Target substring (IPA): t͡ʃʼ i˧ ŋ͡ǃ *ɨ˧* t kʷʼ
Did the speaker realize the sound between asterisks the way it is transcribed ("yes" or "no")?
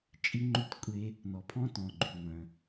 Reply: no